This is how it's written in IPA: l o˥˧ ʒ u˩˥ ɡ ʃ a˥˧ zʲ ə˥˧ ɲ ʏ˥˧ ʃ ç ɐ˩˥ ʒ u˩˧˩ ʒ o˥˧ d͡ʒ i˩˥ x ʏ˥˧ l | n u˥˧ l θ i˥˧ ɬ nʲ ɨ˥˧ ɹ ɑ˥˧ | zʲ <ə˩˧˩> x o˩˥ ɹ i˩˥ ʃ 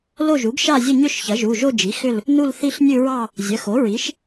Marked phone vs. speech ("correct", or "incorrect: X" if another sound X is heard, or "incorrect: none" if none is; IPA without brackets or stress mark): correct